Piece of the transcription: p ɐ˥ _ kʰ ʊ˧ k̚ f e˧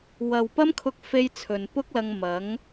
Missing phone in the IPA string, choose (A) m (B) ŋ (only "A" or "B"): A